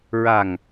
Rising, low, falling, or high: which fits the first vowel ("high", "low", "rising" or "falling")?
low